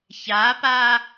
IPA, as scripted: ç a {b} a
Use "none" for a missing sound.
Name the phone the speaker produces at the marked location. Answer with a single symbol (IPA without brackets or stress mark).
p